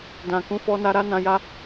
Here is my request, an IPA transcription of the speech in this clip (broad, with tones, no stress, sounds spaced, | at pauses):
d ã˨ k ũ˨˦ f ɔ˧ n a˧ ɾ a˦ n ã˧ j a˦